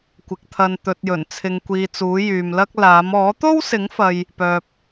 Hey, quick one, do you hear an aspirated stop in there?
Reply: yes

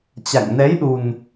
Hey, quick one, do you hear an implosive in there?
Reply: yes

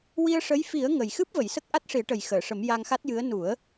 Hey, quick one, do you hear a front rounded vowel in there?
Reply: no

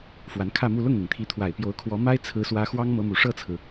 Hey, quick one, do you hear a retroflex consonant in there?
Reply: yes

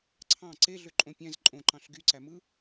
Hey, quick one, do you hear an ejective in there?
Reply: yes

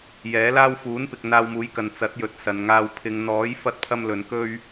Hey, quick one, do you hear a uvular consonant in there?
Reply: no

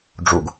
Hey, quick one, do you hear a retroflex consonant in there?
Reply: yes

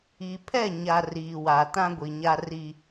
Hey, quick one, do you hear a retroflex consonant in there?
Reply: no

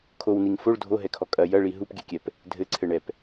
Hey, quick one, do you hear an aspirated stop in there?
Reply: yes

